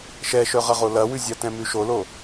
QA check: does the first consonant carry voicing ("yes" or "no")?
no